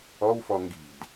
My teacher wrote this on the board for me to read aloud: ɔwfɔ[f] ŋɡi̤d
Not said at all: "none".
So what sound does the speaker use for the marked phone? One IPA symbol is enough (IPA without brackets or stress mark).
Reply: none